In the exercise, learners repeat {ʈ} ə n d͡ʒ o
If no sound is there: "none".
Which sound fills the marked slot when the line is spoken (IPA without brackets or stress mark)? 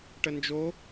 ʈ